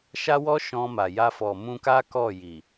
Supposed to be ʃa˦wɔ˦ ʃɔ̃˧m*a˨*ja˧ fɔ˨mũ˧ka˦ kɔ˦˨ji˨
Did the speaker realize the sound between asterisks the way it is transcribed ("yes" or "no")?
yes